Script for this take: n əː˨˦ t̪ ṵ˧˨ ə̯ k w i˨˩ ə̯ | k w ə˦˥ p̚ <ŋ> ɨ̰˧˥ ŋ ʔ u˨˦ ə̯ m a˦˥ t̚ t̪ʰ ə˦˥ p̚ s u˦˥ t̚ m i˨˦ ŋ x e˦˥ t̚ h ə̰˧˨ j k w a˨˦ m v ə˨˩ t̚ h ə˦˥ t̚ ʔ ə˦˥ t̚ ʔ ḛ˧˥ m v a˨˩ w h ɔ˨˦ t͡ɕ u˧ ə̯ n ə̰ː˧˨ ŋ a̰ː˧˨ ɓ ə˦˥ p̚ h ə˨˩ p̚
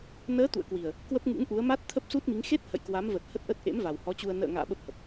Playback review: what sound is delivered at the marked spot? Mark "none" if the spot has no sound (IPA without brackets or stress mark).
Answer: ŋ